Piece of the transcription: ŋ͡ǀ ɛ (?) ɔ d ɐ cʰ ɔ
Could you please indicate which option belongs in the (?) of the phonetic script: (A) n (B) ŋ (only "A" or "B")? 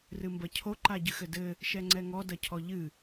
B